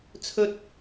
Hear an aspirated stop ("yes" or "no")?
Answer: yes